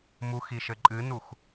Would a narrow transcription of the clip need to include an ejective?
yes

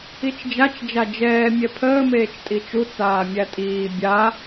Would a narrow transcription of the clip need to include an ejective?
yes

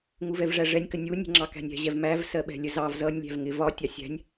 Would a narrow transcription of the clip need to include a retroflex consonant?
yes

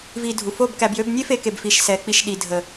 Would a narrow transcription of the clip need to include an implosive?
yes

